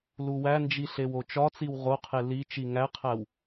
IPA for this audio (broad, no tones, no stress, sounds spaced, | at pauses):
l u w æ n d͡ʒ i ɬ e w o t͡ʃ ɒ t͡s i w ʁ o qʰ e l i t͡ʃ i ŋ æ qʰ æ w